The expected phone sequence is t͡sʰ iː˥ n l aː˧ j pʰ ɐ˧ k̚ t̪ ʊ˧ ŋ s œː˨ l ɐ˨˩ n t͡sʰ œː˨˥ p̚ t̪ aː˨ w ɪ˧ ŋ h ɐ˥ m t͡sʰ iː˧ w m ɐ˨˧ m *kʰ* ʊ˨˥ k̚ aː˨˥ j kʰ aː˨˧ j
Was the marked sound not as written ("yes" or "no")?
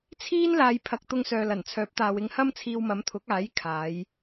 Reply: yes